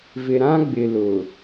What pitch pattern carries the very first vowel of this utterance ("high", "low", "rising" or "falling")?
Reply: low